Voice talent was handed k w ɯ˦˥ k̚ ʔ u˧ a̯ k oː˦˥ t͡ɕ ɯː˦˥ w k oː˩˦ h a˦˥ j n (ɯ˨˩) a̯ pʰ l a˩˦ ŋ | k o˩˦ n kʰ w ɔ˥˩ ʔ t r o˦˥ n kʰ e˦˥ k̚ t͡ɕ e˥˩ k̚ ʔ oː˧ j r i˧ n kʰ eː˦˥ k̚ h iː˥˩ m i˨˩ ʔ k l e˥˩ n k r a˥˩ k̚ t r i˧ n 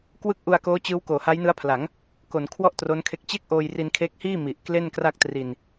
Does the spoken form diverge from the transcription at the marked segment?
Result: yes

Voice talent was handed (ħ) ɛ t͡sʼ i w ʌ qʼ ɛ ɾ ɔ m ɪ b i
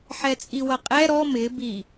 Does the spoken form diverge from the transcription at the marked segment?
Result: no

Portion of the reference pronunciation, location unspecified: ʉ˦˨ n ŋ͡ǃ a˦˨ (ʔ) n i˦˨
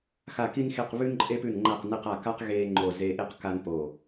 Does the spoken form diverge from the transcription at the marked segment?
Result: yes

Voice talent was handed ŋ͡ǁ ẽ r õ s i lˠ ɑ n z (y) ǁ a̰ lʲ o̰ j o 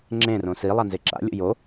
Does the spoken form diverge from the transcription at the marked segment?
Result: yes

